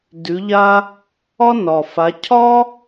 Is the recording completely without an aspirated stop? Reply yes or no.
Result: no